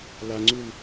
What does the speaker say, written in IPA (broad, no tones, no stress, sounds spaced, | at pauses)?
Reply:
l a ŋ͡ǀ u l